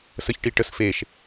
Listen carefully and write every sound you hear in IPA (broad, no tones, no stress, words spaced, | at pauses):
səçʈi ʈəs feʃ